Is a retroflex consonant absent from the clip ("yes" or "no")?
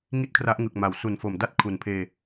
yes